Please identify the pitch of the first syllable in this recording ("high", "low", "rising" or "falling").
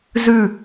falling